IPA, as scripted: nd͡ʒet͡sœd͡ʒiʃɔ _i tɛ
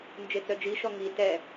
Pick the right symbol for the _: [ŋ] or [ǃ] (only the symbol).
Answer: ŋ